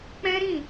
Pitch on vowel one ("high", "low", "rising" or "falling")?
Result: high